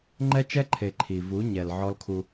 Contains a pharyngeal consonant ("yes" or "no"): yes